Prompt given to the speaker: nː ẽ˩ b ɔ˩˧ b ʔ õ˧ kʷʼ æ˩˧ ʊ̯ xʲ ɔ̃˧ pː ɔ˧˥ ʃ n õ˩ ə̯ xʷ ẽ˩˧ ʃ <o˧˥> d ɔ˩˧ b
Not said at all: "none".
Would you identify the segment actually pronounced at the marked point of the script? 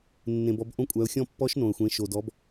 o˩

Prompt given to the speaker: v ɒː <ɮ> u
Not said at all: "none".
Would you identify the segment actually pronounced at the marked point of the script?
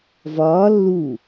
lː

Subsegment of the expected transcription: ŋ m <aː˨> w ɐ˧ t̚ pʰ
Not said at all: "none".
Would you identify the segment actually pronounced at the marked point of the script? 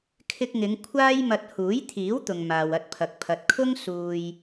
aː˨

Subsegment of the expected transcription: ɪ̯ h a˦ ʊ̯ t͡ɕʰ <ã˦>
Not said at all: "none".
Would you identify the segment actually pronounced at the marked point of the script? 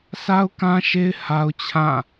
ã˦˨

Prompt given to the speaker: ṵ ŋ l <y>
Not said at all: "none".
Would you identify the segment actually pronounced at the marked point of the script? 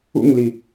i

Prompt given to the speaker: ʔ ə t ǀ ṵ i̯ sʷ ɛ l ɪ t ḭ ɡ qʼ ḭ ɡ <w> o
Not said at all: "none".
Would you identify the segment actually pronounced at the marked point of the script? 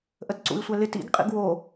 w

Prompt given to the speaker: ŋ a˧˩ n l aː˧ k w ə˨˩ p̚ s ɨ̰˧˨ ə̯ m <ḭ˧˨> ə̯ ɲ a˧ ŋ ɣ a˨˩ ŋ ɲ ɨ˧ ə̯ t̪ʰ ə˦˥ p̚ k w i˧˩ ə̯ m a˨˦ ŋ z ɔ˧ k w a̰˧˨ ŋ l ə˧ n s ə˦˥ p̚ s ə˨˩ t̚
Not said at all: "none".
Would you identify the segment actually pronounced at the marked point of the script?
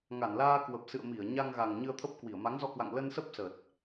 i˧˩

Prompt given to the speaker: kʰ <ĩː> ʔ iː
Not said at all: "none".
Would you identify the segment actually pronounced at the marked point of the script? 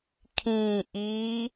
ĩː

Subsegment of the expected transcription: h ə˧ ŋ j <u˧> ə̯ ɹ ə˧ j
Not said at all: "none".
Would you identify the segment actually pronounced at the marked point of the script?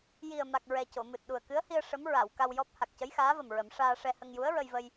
u˧˥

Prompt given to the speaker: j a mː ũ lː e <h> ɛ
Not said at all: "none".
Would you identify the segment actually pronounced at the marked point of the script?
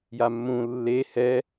h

